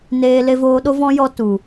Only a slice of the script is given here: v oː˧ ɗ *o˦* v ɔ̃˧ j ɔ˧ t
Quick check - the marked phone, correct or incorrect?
correct